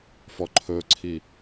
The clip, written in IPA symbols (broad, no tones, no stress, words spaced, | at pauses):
fɔǃʰɵǀʰi